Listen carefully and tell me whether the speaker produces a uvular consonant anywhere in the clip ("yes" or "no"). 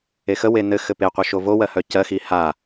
yes